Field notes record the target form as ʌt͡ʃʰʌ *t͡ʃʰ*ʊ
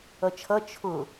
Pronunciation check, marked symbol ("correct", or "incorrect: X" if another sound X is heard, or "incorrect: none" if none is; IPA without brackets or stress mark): correct